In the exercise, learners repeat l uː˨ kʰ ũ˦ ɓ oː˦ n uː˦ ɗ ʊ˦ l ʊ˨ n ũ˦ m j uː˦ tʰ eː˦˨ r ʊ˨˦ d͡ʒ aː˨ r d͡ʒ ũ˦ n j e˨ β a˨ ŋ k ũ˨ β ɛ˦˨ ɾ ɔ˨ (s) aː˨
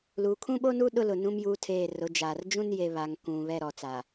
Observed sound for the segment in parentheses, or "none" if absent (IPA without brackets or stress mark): t͡s